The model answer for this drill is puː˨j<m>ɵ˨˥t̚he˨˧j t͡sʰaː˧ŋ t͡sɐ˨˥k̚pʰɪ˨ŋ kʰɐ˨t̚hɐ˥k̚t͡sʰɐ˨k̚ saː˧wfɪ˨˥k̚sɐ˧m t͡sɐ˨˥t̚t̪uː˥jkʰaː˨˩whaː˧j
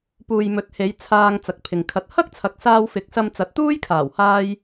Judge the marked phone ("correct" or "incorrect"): correct